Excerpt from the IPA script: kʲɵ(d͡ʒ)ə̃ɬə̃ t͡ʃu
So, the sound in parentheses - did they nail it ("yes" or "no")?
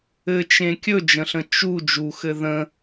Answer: yes